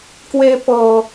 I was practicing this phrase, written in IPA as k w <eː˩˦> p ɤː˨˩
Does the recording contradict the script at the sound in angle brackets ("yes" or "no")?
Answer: yes